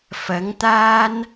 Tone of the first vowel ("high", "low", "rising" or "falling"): rising